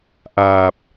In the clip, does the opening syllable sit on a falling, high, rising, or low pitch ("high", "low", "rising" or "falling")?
low